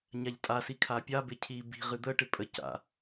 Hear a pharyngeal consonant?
no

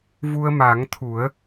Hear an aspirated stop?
yes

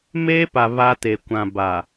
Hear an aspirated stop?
no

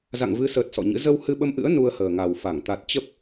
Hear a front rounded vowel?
no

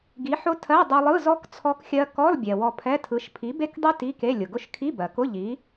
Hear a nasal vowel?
no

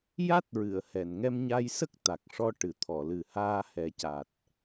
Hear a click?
no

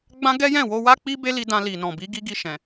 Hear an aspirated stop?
no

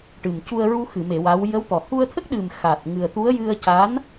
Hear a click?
no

